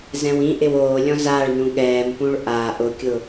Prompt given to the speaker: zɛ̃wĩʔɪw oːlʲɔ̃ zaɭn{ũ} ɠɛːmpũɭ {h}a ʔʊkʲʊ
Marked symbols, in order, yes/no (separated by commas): yes, no